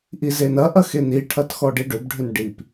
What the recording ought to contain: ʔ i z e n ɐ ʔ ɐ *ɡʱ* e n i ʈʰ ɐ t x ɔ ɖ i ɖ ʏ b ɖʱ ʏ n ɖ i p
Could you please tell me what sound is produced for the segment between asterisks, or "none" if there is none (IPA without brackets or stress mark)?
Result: x